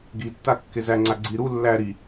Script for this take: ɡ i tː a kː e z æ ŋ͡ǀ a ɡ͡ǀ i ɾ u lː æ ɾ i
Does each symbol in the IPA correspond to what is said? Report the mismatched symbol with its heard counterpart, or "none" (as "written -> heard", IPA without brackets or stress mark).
none